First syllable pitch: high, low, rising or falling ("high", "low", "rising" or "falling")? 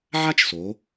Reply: high